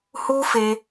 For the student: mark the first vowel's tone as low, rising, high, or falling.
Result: high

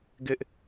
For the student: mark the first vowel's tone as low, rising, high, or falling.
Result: high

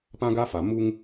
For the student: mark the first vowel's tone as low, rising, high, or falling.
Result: high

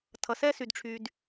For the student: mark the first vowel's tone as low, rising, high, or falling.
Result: low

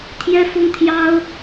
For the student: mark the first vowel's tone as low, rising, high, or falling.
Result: high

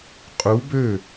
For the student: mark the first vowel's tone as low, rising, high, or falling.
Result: rising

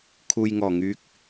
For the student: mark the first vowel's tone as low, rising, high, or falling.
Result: low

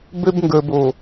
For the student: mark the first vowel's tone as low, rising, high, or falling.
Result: high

